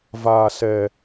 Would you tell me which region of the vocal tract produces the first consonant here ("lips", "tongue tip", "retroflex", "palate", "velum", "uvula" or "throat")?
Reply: lips